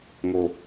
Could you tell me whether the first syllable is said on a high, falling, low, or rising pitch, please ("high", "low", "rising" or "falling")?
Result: low